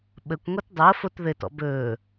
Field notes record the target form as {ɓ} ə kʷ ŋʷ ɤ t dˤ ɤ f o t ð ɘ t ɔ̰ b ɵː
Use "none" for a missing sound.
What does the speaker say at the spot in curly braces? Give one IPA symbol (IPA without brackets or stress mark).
ɓ